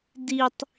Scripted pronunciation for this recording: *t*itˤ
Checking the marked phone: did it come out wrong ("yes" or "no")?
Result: yes